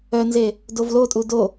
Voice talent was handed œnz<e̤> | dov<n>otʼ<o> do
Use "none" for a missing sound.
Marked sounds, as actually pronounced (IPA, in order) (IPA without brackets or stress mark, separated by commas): e, l, u